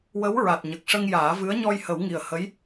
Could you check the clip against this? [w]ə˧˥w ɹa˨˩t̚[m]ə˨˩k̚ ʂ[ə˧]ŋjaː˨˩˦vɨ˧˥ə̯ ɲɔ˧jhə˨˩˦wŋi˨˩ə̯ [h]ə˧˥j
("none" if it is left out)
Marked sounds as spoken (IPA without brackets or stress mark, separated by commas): w, ɲ, ə˧, h